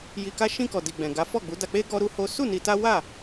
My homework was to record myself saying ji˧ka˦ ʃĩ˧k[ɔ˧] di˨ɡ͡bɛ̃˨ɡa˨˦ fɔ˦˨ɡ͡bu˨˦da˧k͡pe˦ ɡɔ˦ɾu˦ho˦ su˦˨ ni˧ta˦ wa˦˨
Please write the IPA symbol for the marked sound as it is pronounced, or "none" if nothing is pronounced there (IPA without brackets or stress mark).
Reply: ɔ˨